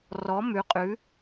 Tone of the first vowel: rising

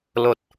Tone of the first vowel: low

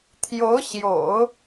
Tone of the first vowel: rising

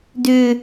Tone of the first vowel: high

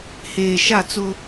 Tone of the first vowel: low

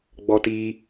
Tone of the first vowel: high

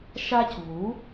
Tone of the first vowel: high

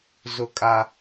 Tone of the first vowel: high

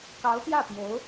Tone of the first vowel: rising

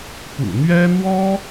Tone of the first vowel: low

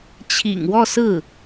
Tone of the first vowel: low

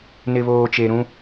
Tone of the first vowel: low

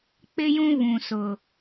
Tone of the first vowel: high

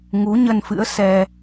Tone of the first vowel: rising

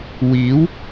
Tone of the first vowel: rising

